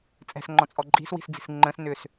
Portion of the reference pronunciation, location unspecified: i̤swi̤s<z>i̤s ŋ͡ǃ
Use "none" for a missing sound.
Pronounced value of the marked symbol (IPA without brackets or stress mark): d͡z